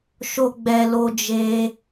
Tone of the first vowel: high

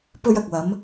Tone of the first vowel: high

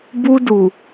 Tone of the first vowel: high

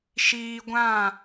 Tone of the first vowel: high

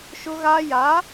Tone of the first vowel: high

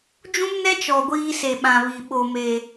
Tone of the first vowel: high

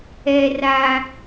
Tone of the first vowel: high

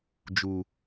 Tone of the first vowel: low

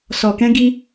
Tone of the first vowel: low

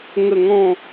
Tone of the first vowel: low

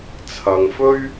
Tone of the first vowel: low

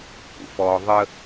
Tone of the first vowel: low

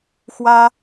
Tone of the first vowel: high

